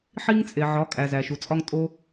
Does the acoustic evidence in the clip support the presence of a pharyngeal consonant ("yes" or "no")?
yes